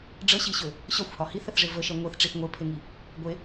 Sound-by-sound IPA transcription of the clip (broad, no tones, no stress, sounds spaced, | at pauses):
ɖ͡ʐ ə ɕ i ɕ ø | ɕ ɒ xʷ h ɒ h i θ ə θ ʐ e v ə ʃ ɛ ŋʷ e θ ʈ͡ʂ i θ ŋʷ e pʰ e ŋ i | ɡʷ e